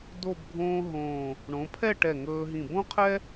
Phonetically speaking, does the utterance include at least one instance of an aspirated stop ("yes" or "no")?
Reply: yes